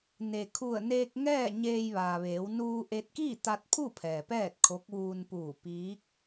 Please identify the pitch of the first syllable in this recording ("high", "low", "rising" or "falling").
low